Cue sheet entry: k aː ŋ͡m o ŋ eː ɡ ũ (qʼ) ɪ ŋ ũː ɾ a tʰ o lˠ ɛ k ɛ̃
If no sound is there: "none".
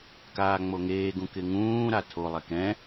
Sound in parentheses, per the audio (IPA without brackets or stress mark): k